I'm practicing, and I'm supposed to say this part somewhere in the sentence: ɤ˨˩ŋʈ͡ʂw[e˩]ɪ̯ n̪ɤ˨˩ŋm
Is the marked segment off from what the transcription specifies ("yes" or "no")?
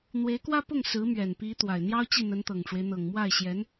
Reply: yes